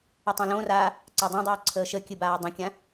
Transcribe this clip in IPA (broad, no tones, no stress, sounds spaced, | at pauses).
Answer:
ə tˤ õ l õ r aː | ǀ a dˤ õ dˤ ɨː ǀʰ əː ʃ ə kʲ ɨ b aː dˤ ə̃ kʲ ã